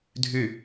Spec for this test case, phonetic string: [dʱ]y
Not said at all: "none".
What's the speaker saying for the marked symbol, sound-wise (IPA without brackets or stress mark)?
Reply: dʱ